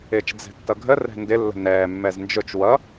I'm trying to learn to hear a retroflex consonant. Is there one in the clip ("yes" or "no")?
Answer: no